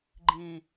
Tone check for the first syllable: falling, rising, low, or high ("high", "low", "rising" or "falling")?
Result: low